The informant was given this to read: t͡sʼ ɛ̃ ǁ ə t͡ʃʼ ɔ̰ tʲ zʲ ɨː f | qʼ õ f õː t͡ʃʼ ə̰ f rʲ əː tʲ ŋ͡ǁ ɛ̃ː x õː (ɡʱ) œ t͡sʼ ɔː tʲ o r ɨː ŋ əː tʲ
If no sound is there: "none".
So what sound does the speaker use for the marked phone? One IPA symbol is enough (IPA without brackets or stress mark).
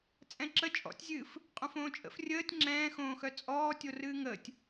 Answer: x